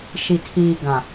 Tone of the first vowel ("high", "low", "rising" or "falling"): low